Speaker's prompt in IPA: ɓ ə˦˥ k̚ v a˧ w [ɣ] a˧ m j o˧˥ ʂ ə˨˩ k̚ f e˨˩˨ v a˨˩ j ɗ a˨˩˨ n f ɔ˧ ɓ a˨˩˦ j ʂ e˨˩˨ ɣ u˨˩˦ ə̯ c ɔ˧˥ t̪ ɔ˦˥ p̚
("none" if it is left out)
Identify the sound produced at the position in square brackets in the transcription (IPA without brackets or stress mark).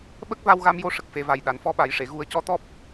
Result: ɣ